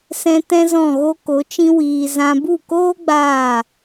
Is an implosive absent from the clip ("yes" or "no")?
yes